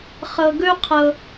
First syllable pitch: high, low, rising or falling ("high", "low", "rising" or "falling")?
low